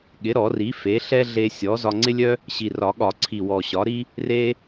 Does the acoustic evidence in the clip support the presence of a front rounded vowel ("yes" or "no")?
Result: yes